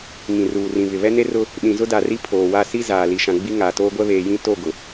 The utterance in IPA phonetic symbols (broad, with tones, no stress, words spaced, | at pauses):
ŋĩ˨ruː˨rĩ˨ βɪ˨βɛ˦ne˦rʊ˦ | ɗĩ˨zʊ˦da˨ri˦ pʰoː˨wa˦ si˦ zaː˨ li˨ʃã˨ɡ͡bi˦ ŋaː˨toː˦ɡʷɛ˦ βeː˨jĩ˦˨ to˦˨ɡʊ˨